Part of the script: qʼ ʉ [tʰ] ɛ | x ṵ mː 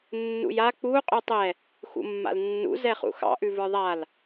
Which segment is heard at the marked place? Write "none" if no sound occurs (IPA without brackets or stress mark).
tˤ